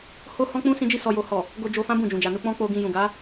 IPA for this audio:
h o˦ h ɔ̃˦ k͡p ũ˦ s ĩ˧ d͡ʒ i˧ s ɔ˨ j o˨ h ɔ˨ | ɡ o˧ d͡ʒ o˧ f ã˦ b ũ˦˨ d͡ʒ ũ˨ d͡ʒ a˨ n u˧ k͡p ɔ̃˦ k͡p o˧ ɡ ĩ˧ j ũ˨ ɡ a˨˦

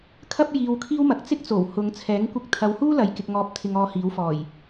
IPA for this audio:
kʰ ɐ˥ p̚ j iː˧ w kʰ iː˥ w m ɐ˨˥ k̚ t͡s ɪ˥ k̚ t͡s o˨˩ w h ʊ˨˧ ŋ t͡sʰ ɛː˨˥ ŋ kʷ ɪ˧ k̚ t̪ʰ ɐ˨˧ w h uː˥ l ɐ˨˧ j k ɪ˨ k̚ ŋ ɔː˨˥ p̚ t̪ʰ ɪ˨ ŋ ɔː˨˧ h iː˨˥ w f ɔː˨˩ j

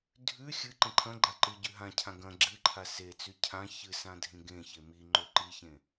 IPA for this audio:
dʱ ʉ xʲ ɨ ǃ ẽ ǃʰ ɐ̃ ɡ͡ǃ a ǃ ɨ ɟ ʉ ɦ ã cʰ ã ɡ ɐ̃ ɡ͡ǁ ɨ ǃʰ a s e t͡s ʉ cʰ ã ç ɨ s ã dʱ ĩ ɡ ẽ ç e m i ŋ͡ǃ ɵ ǃ i ç ẽ

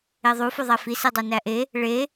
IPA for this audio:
e ðˤ u f o ðˤ æ f i s e dˤ æ n æ ʔ e | ɭ e

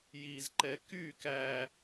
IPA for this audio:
j i z ǃ ɛ k y k æ

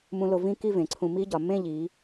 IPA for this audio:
m ũ˧ l o˧ v ĩ˥˧ k i˥˧ v ẽ˩˧ ǀʰ ũ˧ m i˥ ɟ ɒ˩˧ m ẽ˥˧ ʎ i˩˧

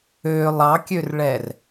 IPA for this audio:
ø lˠ ɑ kʲ ø r ɭ ɛ r

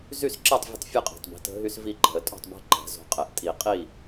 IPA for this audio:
z y˥˩ s ǁ ɛ˥˩ tˤ vʲ ə̤˦ tˤ fʲ o˥˩ qʼ i̤˩ tˤ b i̤˩˧˩ t ə̤˦ ɦ y˦ s v i˥˩ ǃ ɛ̤˨˩˦ ə̯ tʼ o̤˥˩ tˤ b ɛ̤˦ ǃ ɛ̤˨˩˦ z o̤˩˧˩ qʼ ɛ˨˩˦ ʔ tʼ i˨˩˦ qʼ i˥˩

